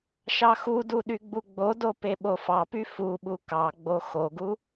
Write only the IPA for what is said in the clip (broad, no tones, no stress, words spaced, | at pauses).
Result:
ʃɑxudu ɗyɡ͡buɡ͡bodo peɓofɑpy fuɓu kɑɡ͡bo xoɡu